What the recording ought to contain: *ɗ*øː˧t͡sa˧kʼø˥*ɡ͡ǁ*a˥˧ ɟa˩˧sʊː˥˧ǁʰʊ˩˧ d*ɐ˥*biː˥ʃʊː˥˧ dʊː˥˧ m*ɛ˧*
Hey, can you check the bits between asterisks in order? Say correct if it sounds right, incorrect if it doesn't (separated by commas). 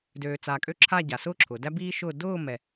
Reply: incorrect, incorrect, incorrect, correct